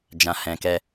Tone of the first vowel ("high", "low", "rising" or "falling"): low